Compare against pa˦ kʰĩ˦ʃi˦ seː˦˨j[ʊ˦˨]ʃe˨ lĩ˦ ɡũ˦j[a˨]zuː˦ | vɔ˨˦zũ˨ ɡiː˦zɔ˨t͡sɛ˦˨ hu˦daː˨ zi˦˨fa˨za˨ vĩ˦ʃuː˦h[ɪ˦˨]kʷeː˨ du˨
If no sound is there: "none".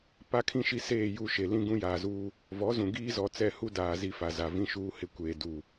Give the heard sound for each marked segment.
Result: u˦˨, aː˨, ɪ˦

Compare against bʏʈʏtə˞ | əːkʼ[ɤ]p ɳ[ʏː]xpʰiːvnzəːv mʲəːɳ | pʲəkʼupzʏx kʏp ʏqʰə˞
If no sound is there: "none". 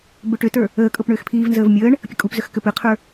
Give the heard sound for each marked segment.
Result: ɤ, ʏː

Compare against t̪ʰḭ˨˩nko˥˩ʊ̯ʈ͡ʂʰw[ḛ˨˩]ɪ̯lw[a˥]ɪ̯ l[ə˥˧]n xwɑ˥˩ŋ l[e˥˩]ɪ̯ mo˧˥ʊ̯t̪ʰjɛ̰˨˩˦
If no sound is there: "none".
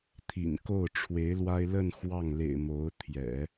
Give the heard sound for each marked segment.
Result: e˧˥, a˥, ə˥˧, ḛ˨˩

